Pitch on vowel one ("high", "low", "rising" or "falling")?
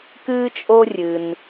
high